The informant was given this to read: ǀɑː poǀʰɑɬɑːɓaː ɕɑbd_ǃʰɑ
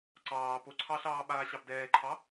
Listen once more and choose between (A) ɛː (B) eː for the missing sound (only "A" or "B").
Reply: A